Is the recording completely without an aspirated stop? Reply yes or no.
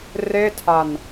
no